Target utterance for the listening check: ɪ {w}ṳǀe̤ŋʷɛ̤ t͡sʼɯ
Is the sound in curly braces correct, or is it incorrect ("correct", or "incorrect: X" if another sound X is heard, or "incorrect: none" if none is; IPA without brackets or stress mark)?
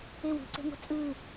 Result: correct